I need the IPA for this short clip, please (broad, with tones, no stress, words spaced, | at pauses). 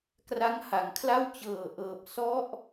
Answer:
kra˦˥ŋha˩˦ŋkʰla˥˩w t͡ɕɤː˨˩ʔɤː˨˩p̚ sɔ˦˥ʔ